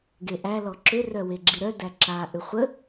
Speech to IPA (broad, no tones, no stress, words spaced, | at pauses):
ɡeʔæ lɔǁʏ rœweɡ͡ǁiɾœ dæǁa ʔʏχʷə